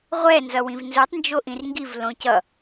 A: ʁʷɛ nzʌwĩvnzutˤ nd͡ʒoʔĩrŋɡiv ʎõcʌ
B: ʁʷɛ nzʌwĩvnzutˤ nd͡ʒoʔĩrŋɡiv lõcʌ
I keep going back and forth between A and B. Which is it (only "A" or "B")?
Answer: B